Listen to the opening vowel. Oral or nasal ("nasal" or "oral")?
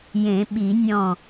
nasal